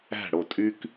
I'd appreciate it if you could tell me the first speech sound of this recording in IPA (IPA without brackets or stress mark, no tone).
æ̤